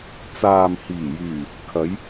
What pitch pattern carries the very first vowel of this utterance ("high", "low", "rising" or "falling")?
low